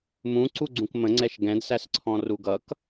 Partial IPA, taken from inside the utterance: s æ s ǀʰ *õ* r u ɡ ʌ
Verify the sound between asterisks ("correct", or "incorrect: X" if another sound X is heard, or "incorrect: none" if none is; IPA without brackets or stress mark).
incorrect: ɔ̃